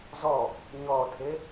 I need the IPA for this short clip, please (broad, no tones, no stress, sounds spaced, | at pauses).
z ɔ | ɲ ɔ tʰ e